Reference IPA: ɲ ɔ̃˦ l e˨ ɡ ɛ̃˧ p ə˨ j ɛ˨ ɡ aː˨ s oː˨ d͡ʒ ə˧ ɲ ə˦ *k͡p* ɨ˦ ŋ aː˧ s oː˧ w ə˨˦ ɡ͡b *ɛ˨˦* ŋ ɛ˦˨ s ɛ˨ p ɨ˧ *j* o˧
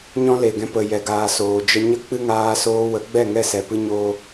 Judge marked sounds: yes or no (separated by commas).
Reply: yes, no, no